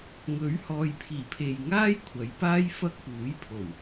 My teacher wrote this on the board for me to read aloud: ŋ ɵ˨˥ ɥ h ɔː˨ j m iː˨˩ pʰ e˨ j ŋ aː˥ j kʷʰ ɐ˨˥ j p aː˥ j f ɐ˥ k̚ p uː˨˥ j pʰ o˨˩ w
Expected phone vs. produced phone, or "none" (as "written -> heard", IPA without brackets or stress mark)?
m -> pʰ